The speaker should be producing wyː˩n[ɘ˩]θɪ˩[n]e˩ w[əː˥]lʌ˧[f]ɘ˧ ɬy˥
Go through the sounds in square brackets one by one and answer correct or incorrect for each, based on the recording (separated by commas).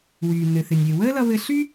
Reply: correct, incorrect, correct, incorrect